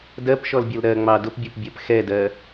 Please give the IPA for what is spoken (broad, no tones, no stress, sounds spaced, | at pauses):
d ɜ p ʃ ɔ l bʲ ʌ l ɾ ɜ ŋ͡m ɑ d ʊ p bʲ ɔ p bʲ ɜ p x ɛ d ɜ